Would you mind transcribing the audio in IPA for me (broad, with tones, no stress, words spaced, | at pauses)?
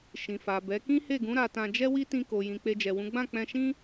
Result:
ʃĩ˨fa˨bɛ˨˦ kĩ˦he˦˨ɡũ˨˦ ɾa˧tã˧d͡ʒɛ˦wi˦ tĩ˧ko˨jĩ˨ k͡pe˧d͡ʒɛ˨wũ˨˦ ɡ͡bã˦˨k͡pɛ̃˧ʃĩ˦